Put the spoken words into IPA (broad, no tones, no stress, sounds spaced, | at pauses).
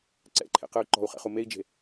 ǀ ɛ̰ ǃʰ ḛ q ɯ y̯ ǃ ɔ̤ u̯ χ ɛ̰ χ u m e i̯ d͡ʒ e̤